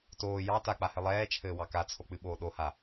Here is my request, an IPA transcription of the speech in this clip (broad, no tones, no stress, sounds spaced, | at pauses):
t oː j ɑ t a k͡p a h ɘ lˠ ɛː t͡ʃʰ ɘː w ɑ k a t͡sʰ o k͡p ɨ ɓ oː ɗ o h a